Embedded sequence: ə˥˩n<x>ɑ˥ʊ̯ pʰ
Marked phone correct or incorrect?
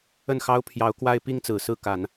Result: correct